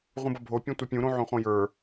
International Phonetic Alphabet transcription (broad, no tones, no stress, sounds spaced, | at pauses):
ʁ ũ b ʌ bʱ o pʲ ũ tʷ ʌ pʲ ũ ɾ õ ʕ õ χ õ j ə˞